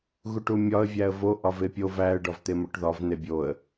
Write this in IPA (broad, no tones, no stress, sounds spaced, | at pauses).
ɣ u ʈ u mʲ ɒ ə̯ vʲ æ ə̯ v o ʔ ɒ v e pʲ o v æ ə̯ ɖ ɒ v t̪ e m o ʈ ð ɒ v n̪ e bʲ o ə̯